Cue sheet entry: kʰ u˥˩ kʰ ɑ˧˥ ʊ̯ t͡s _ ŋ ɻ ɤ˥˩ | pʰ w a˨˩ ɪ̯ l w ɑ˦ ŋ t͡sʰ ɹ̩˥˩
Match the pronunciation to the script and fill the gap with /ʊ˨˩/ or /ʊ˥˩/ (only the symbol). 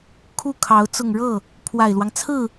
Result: ʊ˨˩